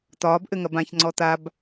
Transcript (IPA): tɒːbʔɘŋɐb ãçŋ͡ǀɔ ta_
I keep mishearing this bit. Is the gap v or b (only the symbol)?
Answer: b